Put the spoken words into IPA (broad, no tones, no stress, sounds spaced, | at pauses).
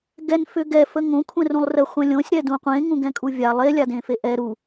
ɡ ɛ n f ʏ ɡ ɛ f ə ŋ õ kʷʰ ɛ̃ r ũ lˠ r ə χʷ ɛ̃ lʲ õ sʲ ɾ ɛ d ũ qʷ ẽ ŋ ũ ɡ ɛ̃ kʼ u vʲ a lˠ e lʲ a d ẽ f e ʔ ɛ ɾ u